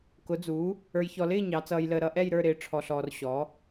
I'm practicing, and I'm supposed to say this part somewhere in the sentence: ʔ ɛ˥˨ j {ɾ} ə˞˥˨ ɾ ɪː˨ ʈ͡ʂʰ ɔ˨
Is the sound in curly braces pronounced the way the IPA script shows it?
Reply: yes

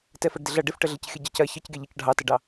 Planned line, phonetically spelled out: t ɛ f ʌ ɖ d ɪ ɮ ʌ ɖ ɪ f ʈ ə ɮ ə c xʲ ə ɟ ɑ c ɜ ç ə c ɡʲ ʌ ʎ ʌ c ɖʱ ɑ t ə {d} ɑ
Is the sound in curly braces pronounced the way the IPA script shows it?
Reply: no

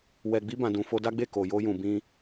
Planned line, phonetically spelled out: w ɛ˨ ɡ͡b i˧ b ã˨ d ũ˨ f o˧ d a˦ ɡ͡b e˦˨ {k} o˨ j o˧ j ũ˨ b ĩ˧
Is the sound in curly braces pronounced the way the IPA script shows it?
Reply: yes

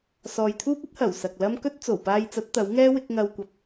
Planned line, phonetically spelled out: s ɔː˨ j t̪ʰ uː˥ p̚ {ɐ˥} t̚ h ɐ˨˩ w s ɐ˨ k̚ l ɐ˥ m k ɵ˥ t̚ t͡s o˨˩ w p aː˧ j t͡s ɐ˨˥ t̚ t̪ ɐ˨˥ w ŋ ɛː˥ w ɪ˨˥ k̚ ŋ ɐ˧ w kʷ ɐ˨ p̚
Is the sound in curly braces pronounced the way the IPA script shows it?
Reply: yes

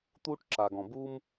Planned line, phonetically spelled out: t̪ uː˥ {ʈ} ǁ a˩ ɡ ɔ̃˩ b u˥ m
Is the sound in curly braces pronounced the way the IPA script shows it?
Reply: yes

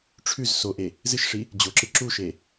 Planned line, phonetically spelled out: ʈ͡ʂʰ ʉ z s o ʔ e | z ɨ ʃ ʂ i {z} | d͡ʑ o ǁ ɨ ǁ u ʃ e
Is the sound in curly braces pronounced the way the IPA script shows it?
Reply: no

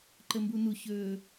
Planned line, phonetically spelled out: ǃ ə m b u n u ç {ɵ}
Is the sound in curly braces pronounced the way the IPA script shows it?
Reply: yes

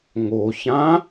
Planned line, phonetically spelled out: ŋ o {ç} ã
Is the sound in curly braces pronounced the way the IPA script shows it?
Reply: yes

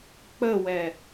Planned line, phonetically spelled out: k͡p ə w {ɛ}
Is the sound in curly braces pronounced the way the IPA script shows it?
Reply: yes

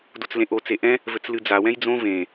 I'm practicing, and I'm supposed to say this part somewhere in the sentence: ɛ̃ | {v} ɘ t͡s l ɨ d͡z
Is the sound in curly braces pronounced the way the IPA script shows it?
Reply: yes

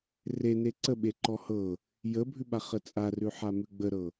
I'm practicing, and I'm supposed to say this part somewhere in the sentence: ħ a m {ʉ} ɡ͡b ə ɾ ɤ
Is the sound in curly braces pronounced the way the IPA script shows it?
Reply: yes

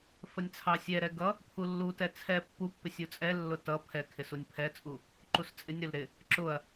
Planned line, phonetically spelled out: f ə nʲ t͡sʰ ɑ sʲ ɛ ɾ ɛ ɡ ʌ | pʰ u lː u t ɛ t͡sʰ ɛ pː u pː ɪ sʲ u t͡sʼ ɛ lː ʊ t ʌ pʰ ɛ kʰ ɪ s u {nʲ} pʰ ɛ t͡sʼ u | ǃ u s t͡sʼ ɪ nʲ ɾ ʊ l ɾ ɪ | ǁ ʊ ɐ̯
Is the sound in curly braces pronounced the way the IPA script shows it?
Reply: yes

